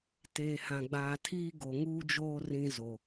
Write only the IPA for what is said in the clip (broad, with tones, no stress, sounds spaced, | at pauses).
t eː˨ h ã˨ ɡ͡b aː˨ tʰ iː˦ ɡ o˨ ŋ uː˦ d͡ʒ oː˦ r ĩ˦ z o˨